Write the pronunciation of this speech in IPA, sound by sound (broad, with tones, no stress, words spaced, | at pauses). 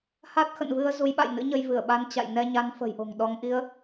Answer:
ha˦˥t̚xə̰˧˨nvɨ˧ə̯ zu˨˦jɓa̰˧˨jnɨ̰˧˥ɲə˧j vɨ˧˩ə̯ɓa˨˦n t͡ɕa̰˧˨j nɛ˧ɲa˨˦nfə̤˨˩jʔo̤˨˩ŋ ɗɔ˨˦ŋ ʔi˨˦ə̯